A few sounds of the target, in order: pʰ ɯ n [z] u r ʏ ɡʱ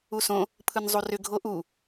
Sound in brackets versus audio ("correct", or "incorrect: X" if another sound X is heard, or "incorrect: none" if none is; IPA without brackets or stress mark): incorrect: zˤ